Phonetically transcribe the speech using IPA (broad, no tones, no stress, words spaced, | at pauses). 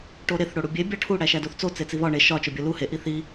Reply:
ʈoɾeθ ɽoɽubʲe bʲɒʈʰu ɽæʃædoθt͡so t͡set͡siβɒ ɳe ʃɒ t͡ʃobʲolu he ʔiθi